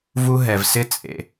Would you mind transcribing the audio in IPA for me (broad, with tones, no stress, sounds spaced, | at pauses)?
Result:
v u˥ ɦ ɛ˩ v s ɪ˥ t͡sʼ ḛ˩